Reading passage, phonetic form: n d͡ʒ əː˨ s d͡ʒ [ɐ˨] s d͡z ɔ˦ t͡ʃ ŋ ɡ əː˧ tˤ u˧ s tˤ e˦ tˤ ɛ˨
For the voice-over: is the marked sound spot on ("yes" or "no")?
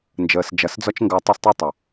yes